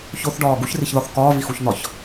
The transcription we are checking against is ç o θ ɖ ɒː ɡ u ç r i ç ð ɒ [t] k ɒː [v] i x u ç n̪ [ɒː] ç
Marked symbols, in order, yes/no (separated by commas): no, yes, no